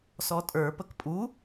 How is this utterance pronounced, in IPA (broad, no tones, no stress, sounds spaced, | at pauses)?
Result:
s ɔ tʼ ə˞ p ə k pʼ u